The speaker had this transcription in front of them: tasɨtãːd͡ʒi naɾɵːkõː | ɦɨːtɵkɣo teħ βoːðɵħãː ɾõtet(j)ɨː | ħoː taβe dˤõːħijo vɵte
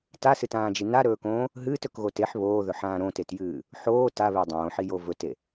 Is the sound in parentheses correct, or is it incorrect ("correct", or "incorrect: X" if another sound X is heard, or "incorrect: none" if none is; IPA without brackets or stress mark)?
correct